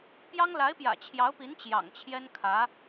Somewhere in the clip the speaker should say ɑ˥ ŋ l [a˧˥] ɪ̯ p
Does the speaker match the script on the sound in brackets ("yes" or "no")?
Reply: yes